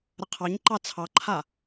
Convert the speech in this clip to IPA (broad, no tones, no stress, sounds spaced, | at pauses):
ɾ ə qʰ ɑ ɲ ǃ ɑ t͡sʰ ɑ ǃʰ a